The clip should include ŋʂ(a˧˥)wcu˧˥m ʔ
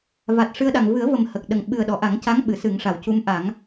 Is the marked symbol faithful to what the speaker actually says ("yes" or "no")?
no